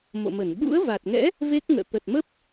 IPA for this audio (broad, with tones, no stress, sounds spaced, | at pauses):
m o̰˧˨ m ə˧˩ n ɓ ṵ˧˥ ə̯ v a˨˩ t̚ ŋ ɛ̰˧˥ | v e˦˥ k̚ ŋ ə̰ː˧˨ t̪ ə˨˩ t̚ m ə˦˥ p̚